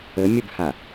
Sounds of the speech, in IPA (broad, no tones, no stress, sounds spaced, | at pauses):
ə mʲ ə b h a